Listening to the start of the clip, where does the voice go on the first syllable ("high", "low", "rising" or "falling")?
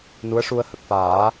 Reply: rising